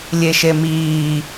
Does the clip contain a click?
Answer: no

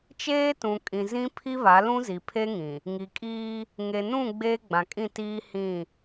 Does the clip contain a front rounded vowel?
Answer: no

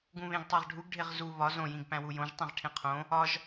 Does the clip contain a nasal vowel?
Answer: yes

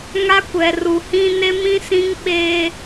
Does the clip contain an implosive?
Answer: yes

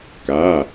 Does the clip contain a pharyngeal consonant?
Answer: no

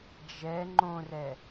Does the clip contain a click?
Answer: yes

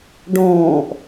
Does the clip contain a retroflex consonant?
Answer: yes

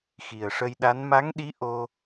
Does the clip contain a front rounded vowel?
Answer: no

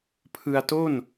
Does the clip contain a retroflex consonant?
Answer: no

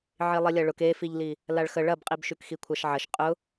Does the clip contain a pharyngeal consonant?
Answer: yes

